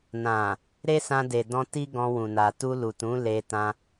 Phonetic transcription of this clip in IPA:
n ã˨ | ɾ e˦ s ã˧ d e˨ d ɔ̃˧ t i˦ ɡ ɔ̃˧ w ũ˨ n a˨ t u˧ l u˨ t ũ˨˦ l e˧ t ã˦

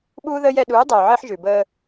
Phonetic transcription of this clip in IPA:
ɓ uː˦ ð əː˦ j ɛ˧ ɗ uː˨˦ dˤ œː˨ ʕ əː˧ ħ ʒ ʉ˨ b əː˧

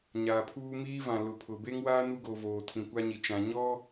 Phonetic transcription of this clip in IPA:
ɲ aː˨ pʰ uː˦ m iː˦ v ã˨ l ʊ˨ pʰ ʊ˨ b e˦ ŋ w a˦ n u˦ ɡ o˨ v oː˨ tʰ ĩ˨ kʷ a˦ ɲ i˨ t͡ʃ ã˨ ɲ ɔ˦

